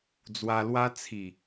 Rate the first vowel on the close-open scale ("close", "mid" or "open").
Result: open